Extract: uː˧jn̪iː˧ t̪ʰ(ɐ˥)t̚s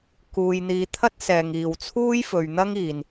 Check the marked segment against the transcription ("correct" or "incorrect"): correct